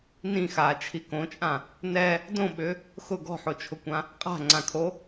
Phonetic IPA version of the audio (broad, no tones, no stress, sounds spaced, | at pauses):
n ĩ x aː t͡ʃʰ i k õ t͡ʃʼ ã | n ɛ | d õ ɓ ʏ | x ʊ ɡ ɔ̤ ħ o t͡ʃʰ ʊ kʷ ã | qʼ a̤ ŋ͡ǀ ã kʰ o